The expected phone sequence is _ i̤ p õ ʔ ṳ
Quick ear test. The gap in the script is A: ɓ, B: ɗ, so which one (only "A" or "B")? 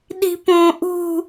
B